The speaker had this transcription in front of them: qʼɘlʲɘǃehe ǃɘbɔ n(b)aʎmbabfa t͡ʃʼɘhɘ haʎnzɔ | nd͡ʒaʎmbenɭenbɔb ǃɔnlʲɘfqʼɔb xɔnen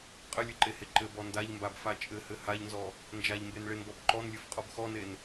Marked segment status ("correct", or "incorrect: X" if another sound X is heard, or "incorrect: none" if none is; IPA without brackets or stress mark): incorrect: d